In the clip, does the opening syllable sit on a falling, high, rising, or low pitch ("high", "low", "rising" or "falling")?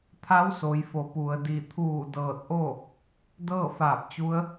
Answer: rising